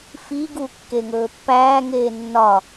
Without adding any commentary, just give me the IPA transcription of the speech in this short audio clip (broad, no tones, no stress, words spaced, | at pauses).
fiːɡuː kːeŋɵːpːæːŋeː nːɒ